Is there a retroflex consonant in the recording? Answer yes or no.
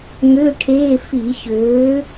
yes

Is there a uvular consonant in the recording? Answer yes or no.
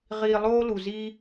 yes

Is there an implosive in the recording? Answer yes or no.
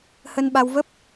yes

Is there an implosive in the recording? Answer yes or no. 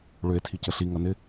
no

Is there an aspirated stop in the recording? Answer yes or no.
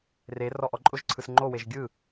yes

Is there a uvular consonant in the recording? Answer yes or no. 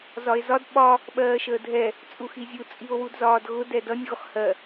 yes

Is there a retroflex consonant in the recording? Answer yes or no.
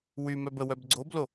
no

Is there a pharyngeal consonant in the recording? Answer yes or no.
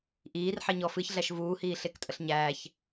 yes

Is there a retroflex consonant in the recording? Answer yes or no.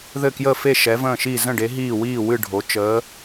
yes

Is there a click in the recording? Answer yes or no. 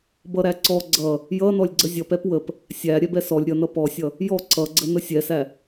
yes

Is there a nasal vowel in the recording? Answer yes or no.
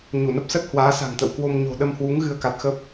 no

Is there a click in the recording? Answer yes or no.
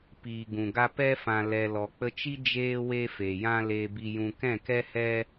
no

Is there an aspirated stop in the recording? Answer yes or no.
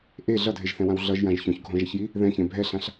no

